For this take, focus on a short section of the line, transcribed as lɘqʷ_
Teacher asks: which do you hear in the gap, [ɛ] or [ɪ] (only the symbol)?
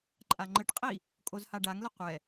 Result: ɛ